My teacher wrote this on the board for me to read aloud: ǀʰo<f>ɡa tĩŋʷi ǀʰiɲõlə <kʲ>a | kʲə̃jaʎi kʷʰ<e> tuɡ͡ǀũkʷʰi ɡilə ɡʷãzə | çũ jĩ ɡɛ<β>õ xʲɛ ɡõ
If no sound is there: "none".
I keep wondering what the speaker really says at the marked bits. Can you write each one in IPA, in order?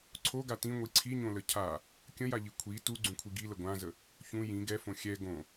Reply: none, cʰ, i, f

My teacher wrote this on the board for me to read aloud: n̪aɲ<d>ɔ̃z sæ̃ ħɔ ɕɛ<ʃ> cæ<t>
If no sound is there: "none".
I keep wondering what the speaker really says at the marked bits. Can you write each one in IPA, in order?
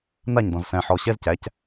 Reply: d, z, c

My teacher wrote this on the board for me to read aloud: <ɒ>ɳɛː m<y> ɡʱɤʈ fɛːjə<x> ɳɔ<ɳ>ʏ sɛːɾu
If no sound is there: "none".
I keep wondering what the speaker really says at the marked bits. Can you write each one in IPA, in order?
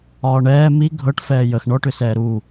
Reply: ɒː, i, x, ʈ

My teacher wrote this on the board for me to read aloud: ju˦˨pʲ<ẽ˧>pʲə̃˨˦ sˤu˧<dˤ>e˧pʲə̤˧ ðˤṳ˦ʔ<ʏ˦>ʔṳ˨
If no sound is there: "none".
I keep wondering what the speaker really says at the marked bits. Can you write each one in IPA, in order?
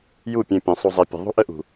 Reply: ẽ˧, zˤ, ə˦

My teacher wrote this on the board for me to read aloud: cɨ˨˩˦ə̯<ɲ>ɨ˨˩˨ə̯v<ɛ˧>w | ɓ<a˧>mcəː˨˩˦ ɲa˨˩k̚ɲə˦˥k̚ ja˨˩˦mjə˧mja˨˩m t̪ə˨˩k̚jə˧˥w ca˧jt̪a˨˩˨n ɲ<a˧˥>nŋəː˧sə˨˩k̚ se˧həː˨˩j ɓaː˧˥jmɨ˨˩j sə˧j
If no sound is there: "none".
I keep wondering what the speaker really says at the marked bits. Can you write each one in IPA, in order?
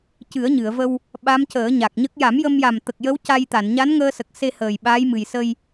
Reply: ɲ, ə˧, a˧˥, a˧˥

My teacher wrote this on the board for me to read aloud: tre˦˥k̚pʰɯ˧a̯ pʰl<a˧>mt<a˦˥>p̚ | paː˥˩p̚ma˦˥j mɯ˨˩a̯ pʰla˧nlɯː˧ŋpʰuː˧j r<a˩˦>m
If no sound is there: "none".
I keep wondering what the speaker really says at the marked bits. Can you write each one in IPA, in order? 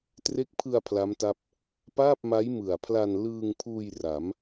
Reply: a˦˥, a˦˥, a˩˦

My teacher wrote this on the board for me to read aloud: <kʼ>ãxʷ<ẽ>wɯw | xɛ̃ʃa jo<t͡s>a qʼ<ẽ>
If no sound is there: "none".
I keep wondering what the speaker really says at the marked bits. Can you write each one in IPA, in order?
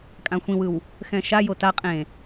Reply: kʼ, ĩ, t, ẽ

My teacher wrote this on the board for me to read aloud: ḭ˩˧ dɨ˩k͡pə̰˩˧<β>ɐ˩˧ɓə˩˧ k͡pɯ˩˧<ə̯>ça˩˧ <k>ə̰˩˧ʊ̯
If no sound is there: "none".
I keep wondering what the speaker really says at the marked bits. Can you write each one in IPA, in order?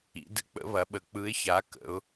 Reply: β, ɪ̯, k

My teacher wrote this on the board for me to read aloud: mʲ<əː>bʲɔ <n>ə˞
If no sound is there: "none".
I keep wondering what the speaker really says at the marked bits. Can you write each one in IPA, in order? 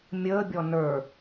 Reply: əː, n

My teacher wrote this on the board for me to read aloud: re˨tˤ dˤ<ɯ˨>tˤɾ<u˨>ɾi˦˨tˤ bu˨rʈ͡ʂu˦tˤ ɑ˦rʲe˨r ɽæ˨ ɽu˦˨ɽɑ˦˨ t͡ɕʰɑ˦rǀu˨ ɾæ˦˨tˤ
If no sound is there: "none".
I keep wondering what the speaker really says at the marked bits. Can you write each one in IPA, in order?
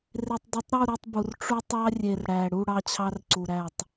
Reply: ɯ˨, u˦˨

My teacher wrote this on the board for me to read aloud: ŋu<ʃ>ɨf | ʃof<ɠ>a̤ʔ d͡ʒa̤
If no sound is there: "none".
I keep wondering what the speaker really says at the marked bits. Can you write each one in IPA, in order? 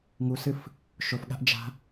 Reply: s, ɠ

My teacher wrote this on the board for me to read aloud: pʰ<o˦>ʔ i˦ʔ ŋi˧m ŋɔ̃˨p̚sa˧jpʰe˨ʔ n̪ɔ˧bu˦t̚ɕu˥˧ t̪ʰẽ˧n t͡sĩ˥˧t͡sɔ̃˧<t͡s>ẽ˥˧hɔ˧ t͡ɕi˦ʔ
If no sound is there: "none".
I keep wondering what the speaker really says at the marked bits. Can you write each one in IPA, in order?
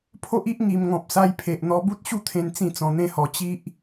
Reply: o˦, n̪

